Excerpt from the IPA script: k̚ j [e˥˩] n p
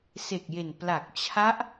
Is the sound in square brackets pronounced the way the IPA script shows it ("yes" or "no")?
no